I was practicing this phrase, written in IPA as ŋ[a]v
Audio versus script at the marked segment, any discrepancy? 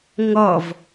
yes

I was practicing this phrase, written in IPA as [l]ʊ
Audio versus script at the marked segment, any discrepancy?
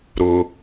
yes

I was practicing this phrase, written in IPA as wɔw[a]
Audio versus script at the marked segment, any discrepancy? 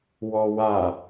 no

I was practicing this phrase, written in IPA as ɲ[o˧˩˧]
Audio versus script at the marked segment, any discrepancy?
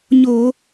no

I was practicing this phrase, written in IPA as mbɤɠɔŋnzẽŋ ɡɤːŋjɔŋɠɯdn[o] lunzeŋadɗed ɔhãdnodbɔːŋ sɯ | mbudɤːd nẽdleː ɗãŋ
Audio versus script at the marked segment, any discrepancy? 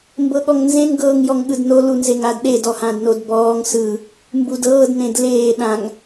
no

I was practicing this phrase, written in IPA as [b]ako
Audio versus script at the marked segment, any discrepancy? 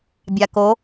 yes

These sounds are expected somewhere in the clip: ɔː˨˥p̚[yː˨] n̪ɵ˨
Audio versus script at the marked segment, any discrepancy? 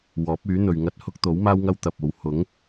yes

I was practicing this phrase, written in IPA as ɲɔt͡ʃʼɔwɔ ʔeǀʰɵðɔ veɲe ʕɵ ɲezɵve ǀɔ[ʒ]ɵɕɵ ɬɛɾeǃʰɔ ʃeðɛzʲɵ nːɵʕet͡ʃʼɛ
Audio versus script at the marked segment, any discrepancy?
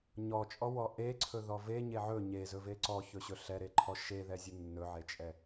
yes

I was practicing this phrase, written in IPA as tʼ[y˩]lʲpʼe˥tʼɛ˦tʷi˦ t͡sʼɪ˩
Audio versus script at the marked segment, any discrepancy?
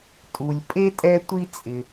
yes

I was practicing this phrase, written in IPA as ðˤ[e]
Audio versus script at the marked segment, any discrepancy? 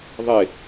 no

